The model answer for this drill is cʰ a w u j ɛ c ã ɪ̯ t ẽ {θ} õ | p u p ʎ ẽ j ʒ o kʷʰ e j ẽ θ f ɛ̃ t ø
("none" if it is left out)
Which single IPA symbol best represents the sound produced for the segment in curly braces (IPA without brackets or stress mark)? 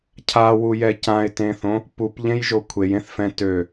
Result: θ